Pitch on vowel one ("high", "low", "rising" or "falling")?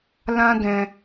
high